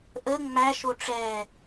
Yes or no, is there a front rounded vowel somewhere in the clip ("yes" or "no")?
no